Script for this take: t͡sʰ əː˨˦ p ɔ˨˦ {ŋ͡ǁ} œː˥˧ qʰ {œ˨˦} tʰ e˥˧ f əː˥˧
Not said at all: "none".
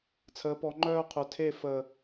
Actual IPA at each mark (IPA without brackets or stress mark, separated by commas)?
ŋ͡ǃ, œ˨˦